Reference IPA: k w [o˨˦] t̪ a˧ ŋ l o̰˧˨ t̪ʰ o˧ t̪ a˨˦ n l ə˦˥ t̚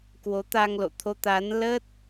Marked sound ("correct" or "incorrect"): correct